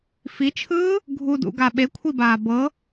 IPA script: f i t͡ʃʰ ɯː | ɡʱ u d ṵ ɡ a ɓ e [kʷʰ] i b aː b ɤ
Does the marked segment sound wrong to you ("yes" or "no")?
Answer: no